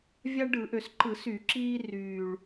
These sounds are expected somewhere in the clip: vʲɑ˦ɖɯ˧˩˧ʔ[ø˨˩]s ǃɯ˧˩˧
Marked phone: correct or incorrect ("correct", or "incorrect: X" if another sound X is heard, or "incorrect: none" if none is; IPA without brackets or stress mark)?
correct